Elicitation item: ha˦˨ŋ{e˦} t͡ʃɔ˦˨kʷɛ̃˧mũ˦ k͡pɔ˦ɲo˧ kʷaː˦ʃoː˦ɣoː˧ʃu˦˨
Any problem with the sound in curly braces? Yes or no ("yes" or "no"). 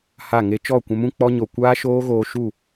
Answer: no